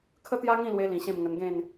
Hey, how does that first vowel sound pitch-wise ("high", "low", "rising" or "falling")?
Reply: high